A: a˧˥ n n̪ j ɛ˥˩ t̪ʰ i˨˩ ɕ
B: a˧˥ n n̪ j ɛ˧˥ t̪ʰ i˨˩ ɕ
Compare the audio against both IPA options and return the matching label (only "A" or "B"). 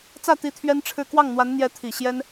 B